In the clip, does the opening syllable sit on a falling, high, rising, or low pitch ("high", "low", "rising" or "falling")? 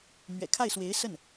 low